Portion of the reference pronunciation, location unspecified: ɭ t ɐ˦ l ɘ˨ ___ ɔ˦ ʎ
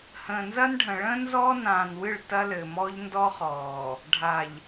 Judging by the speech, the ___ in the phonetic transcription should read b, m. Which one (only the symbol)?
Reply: m